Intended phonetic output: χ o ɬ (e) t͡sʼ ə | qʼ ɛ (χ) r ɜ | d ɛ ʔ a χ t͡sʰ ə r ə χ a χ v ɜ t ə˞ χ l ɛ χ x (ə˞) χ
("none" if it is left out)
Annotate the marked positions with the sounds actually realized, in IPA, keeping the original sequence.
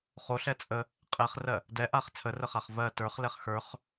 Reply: ɛ, χ, ə˞

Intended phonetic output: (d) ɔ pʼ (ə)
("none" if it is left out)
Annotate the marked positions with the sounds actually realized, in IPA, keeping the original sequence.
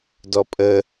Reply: d, ə

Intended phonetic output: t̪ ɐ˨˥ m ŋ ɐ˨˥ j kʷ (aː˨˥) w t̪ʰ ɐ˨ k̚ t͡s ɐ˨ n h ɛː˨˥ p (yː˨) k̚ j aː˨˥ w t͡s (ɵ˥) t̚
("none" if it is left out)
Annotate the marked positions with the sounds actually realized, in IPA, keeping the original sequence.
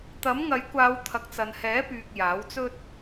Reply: aː˨˧, yː˨, ɵ˥

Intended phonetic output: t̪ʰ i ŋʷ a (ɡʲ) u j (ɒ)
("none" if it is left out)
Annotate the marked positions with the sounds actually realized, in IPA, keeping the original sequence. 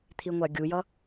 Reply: ɡʲ, ʌ

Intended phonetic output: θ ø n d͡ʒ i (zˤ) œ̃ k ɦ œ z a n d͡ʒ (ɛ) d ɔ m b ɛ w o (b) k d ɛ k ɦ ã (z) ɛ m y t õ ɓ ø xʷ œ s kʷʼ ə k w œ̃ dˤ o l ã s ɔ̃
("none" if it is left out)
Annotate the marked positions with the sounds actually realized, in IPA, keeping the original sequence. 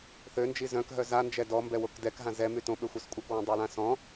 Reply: z, ɛ, none, z

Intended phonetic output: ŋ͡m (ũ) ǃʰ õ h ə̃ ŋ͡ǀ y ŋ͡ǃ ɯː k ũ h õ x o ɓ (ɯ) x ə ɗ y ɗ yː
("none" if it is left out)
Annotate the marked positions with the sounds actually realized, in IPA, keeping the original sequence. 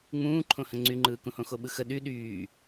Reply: ũː, ɯ

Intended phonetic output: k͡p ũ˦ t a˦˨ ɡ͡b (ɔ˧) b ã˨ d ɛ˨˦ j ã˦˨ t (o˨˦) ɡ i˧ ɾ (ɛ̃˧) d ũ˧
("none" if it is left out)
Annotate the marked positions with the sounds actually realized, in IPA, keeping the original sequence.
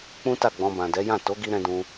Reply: ɔ̃˧, o˨˦, ɛ̃˧

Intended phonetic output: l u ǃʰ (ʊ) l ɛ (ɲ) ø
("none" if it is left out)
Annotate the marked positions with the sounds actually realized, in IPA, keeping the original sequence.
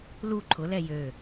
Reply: ʊ, j

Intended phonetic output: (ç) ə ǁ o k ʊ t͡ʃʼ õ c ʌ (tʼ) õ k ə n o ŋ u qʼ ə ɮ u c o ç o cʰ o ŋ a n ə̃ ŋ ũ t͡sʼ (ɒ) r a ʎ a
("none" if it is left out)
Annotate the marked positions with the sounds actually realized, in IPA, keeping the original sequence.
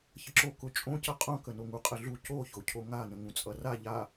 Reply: ç, qʼ, ʌ

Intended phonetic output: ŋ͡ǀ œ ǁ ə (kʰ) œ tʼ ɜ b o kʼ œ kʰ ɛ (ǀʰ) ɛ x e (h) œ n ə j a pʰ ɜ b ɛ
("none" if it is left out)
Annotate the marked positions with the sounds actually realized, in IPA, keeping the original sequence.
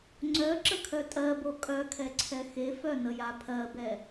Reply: kʰ, ǀʰ, f

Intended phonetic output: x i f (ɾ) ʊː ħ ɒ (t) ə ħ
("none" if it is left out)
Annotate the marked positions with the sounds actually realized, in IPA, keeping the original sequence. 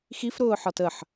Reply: ɾ, t

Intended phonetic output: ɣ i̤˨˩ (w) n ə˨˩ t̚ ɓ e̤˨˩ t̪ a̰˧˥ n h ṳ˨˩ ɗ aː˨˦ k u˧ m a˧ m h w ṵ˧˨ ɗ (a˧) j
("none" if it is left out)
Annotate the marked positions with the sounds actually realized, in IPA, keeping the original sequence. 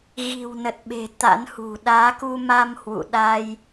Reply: w, a˧

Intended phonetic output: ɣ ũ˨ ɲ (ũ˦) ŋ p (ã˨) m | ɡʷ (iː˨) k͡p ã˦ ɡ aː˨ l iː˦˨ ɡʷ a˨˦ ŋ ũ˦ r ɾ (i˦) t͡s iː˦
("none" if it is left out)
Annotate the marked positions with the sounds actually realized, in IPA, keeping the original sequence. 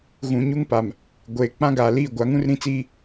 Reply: u˦, a˨, eː˨, ĩ˦

